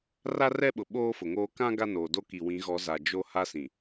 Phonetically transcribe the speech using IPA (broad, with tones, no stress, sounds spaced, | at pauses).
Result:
r a˦ r ɛ˦ ɓ ʊ˨ ɓ oː˦ f ʊ˨ ŋ oː˦ k ã˦ ɡ a˦ n oː˨ d o˦ k i˨ w ĩ˨˦ ɣ ɔ˨˦ z a˨ d͡ʒ o˦ h a˦ s ĩ˨